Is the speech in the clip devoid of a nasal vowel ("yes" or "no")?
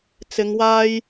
yes